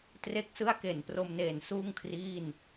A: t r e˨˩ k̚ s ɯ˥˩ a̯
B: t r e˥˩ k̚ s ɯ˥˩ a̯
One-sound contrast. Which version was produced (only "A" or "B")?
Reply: B